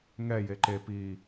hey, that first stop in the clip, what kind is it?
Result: click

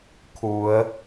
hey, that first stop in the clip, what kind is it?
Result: aspirated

